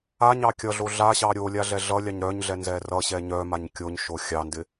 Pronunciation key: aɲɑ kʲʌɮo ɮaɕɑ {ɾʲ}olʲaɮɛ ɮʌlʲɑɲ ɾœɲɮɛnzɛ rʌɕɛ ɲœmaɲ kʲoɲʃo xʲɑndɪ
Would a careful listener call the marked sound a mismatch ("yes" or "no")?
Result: no